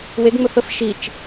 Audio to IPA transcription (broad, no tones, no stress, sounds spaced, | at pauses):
w e ɡ ŋ͡m ɵ f ə f ʃ i t͡ʃ